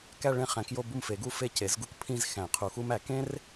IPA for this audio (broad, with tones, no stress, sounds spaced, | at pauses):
k æ˥˧ ɭ ẽ˥˩ χ æ̃˨˩˦ k j o˥˧ b u˥˩ m f e˨˩˦ ɡ u˥˩ f e˥˧ c e˩˥ z ɡ u˥ k pʰ ĩ˥˧ z x æ̃˨˩˦ qʰ u˨˩˦ x u˥ m æ˨˩˦ k ẽ˥ r